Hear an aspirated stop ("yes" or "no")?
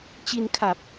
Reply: yes